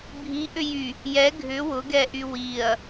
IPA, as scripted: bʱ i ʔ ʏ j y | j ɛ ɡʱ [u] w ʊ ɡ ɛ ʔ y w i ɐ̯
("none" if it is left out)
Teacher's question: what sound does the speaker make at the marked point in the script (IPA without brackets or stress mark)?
ʏ